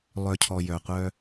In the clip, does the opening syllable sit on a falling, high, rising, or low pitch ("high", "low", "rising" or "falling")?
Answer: low